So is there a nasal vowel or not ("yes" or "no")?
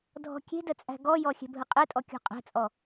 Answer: no